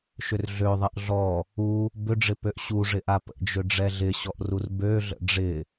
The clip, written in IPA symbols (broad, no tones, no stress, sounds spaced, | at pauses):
ʃ ʏ r ɮ ø ðˤ ɐ ʔ ɮ ɔ | u | b ʏ ɖ͡ʐ ɪ p ø ʔ ɕ u ʐ ɪ ʔ a p ə̰ d͡ʒ ʏ ɖ͡ʐ ɛ ɮ ɪ ɕ ɔ ʔ r u r b ø ɮ ə̰ ɖ͡ʐ ɪ